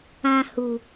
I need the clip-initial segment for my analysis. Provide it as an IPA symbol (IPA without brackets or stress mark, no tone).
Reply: ã